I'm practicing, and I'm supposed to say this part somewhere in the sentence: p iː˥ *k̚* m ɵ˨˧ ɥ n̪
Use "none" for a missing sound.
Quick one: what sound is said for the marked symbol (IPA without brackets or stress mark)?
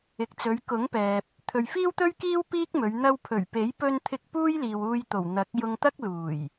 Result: k̚